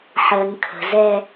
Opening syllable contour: low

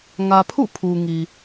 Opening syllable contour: low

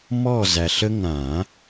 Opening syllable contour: falling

